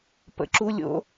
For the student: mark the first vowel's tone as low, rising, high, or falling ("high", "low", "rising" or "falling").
rising